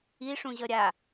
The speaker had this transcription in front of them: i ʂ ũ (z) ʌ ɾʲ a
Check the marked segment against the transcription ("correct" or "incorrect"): incorrect